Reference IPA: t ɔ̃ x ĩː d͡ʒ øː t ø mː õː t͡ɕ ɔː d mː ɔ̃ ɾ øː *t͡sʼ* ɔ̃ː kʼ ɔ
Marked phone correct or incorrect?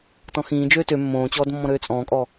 correct